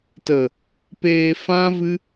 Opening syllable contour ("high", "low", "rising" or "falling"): low